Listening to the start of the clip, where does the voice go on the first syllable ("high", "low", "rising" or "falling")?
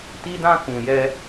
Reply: high